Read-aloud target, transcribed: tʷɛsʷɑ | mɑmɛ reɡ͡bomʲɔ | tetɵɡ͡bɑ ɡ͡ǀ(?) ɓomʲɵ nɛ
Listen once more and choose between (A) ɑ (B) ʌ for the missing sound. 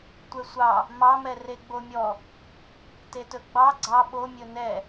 A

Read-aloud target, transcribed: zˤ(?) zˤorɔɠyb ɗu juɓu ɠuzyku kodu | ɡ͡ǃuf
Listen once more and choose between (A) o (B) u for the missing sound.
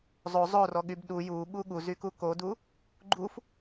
A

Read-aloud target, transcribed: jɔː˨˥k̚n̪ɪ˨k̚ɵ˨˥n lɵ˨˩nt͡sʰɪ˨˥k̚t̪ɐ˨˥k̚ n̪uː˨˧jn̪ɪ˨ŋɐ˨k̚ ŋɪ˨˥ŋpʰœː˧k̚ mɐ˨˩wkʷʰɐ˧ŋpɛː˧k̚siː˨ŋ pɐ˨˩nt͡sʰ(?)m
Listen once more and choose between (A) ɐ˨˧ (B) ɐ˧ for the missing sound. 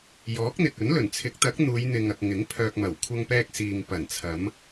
A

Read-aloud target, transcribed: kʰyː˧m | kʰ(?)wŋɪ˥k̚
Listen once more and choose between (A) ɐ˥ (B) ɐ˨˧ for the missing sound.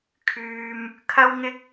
A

